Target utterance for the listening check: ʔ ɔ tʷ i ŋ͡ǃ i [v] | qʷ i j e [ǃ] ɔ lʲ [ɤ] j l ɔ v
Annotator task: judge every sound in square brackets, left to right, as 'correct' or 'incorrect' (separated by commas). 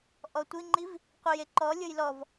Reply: correct, correct, correct